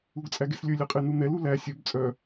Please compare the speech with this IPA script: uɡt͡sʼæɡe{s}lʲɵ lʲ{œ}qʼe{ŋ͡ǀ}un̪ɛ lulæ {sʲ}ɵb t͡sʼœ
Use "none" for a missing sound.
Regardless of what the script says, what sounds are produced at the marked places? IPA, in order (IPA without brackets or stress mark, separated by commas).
s, ɛ, n, sʲ